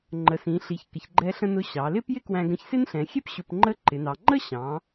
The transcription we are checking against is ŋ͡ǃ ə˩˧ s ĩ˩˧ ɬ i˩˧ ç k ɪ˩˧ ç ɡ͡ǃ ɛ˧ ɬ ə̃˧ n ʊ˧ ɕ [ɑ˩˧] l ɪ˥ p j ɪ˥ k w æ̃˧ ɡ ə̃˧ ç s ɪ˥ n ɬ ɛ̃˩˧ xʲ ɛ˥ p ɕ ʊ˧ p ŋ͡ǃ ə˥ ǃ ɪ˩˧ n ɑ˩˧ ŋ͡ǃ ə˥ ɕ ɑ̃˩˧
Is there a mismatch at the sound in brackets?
no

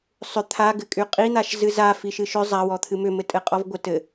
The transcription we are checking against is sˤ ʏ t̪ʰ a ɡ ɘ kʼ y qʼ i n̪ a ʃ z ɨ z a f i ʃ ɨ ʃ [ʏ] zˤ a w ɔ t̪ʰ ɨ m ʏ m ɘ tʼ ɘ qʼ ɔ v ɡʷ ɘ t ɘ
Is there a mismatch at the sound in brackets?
no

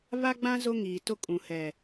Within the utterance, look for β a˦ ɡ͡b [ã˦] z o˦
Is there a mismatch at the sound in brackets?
no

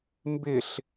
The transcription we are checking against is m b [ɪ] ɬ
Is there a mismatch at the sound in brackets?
no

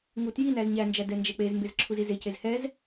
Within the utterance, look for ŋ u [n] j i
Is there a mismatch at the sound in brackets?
yes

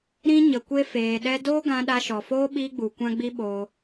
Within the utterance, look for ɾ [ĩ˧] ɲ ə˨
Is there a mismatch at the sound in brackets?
no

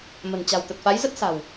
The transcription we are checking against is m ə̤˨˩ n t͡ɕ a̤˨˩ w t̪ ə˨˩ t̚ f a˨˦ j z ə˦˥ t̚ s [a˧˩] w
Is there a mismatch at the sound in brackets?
yes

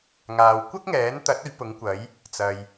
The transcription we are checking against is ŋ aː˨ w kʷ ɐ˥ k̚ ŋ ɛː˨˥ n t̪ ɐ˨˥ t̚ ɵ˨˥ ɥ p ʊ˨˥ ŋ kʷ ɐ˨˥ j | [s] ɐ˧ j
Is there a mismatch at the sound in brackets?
yes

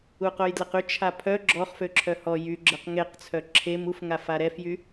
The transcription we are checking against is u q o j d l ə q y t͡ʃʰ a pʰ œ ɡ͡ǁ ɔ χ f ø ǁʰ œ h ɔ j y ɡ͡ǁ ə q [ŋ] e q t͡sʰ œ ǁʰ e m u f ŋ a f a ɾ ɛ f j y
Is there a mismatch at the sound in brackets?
no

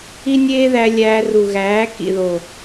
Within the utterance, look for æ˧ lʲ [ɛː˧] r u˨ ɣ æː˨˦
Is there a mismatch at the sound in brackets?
yes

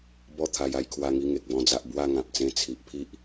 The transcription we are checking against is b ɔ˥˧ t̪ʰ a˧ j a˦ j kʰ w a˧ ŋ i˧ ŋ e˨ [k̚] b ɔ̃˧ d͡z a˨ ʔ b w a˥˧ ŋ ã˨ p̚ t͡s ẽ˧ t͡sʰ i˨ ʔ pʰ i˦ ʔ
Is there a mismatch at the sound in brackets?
no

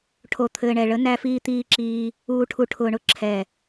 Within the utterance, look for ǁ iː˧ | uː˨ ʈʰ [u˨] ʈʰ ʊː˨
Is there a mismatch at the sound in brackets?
no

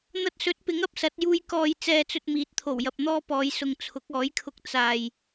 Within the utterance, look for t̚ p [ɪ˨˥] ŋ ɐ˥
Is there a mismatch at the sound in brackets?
no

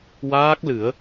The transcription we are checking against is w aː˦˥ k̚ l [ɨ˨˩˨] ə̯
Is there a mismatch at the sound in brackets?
yes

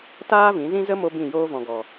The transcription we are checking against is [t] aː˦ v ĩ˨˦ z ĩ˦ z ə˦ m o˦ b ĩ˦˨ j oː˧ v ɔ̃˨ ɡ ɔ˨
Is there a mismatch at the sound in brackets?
no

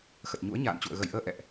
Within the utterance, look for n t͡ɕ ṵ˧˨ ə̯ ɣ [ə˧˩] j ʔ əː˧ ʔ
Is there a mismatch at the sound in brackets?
no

